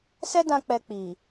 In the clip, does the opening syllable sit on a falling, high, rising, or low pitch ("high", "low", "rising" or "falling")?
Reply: high